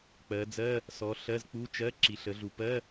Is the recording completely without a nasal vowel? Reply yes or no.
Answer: yes